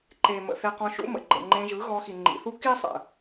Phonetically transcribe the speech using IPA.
ǃ e˨ m ə̰˨ θ e˧ q ɔ̃˧ ʃ ṵ˦ m ə̰˨ ɡ͡ǃ ə̰˨ ŋ͡ǃ ẽ˧ ʒ ɯ˨˦ ɣ ɔ˧ x i˨ ŋ͡ǃ ḭ˨ θ u˦ k i˦ sˤ ə̰˨

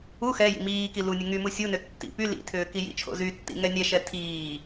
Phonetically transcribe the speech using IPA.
u x ɛ j ḭ m iː k i l u nʲ ɘ ŋ y m u sʲ u n ʏ tː ḭ p y l ḭ tʰ ʏː k i j ḭ t͡ʃʰ o̰ z y tː ḭ ŋ ɛ nʲ ɛ ʃ ɛ tʰ iː

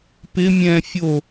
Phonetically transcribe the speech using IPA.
p ɪ mʲ ɛ̃ fʲ o

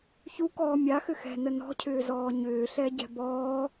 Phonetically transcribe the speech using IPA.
ç u k ɔː mʲ a x ʏ x ɛ̤ n ə n ɔ̤ cʰ ʏː z ɔː ɲ ʏː ɬ ɛ ɟ ɛ̤ b ɔː

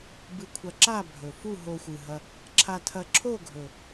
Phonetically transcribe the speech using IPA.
b ɨ˧ kʷʰ ɐ˧ ǁ a˥˧ bʱ ɵ˨˩ f u˥˧ ɦ o˧ xʷ ɨ˨˩ ɦ ɐ˧ | ǁʰ a˧ tʰ ɐ˧ ǁʰ o˥˧ ɡʱ ɵ˨˩

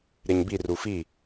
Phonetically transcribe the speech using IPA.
ɾ e ɲ b i r u f i

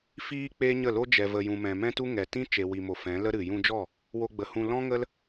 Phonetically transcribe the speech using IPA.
f iː˦ k͡p e˦ ɲ ə˦˨ l o˦ d͡ʒ ɛ˨ v ə˨ j ũ˨ m ɛ̃˨ m ɛ̃˦ t u˦ ŋ ɛ˨ t ĩ˦ t͡ʃ e˨ w i˨ m o˨ f ɛ̃˨˦ l ə˦ ɾ ɨ˨ j ũ˧ d͡ʒ ɔ˦˨ | w o˧ ɡ͡b ə˨ h ũ˧ l ɔ̃˦ ŋ ə˦ l

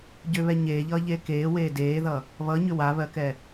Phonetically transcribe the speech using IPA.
ɟ ʏ β ɛ ɲ eː ʎ ʌː ʎ eː k eː w eː d eː ð ʌ | β ʌ ɲ ʏ w a β ɜ k ɛ

